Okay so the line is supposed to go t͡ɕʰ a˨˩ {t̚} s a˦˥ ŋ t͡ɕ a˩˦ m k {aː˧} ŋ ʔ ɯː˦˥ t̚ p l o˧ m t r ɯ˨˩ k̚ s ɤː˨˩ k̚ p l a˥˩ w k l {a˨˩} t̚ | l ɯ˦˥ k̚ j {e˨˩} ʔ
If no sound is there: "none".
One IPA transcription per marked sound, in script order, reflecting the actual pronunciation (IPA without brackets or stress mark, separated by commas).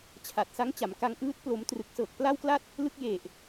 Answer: t̚, a˧, a˥˩, e˨˩